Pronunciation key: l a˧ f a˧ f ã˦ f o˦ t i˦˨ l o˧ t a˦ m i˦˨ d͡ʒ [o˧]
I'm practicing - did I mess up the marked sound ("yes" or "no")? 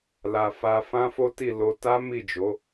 yes